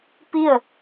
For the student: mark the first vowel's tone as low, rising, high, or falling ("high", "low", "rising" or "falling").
falling